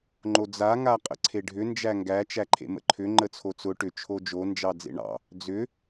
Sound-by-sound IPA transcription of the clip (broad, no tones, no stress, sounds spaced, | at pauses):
ŋ͡ǃ o d͡z a ŋ a qʼ ə̰ ǀʰ e ɖʱ ʏ n d͡ʒ æ ŋ ɡ æ t͡ʃ æ ǃʰ ḛ m ə̰ ǃʰ ʏ ŋ͡ǃ ə t͡sʰ o t͡s ʊ ʈ ʏ t͡ʃʰ o d͡ʒ o n d͡ʒ ɑ d͡z ḛ ɳ ɑ̰ | d͡z ʏ